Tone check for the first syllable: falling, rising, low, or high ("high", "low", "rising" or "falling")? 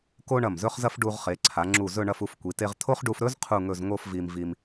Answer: high